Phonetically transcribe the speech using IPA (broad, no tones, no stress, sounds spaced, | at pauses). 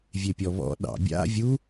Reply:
vʲ e pʲ ɔ β ɔ̰ ɗ ɑ̰ bʲ a̰ vʲ u